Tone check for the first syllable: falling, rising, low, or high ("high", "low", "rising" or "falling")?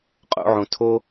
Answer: rising